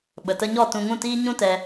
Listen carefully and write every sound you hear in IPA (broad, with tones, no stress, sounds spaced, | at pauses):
ɓ ə˨ t ə˧ ɲ ɔ˦˨ t ũ˧ ŋ ũ˦˨ t iː˦ ɲ ũ˦ t ɛ˧